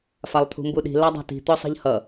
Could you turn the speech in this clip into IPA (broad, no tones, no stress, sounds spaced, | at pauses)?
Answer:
f a lˠ t̪ʰ ṳ m b u ɗ i̤ l ɑ dˤ ɑ̤ t i̤ t̪ œ sˤ i̤ ʎ h ʌ